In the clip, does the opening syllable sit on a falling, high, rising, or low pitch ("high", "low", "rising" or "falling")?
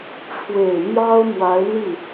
low